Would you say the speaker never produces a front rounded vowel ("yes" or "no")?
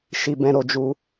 yes